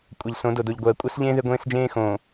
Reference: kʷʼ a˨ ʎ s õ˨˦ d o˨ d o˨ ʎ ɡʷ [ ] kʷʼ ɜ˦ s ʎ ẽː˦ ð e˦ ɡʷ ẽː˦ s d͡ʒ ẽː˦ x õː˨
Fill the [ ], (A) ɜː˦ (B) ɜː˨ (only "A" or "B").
B